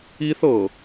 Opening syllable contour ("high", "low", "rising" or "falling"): high